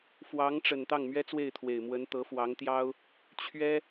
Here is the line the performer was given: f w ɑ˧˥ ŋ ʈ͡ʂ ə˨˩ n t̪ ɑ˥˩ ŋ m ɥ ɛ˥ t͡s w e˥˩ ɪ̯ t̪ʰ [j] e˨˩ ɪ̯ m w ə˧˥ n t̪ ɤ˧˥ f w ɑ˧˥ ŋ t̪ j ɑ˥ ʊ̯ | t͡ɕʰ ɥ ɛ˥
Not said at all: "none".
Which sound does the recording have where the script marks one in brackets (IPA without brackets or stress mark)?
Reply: w